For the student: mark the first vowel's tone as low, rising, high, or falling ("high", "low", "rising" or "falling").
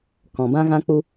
low